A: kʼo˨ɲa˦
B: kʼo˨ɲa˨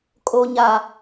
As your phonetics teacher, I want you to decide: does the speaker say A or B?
B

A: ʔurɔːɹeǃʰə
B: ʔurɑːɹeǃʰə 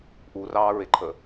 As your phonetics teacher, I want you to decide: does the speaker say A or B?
B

